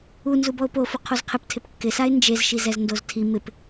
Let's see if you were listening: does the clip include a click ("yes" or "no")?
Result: no